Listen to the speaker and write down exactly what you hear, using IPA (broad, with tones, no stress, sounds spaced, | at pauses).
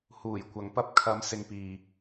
h uː˨˩ j kʷ ɐ˨˧ ŋ p ɐ˧ p̚ kʰ ɐ˨˧ m s ɪ˨ ŋ p iː˨